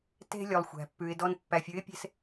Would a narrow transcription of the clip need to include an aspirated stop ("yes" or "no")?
no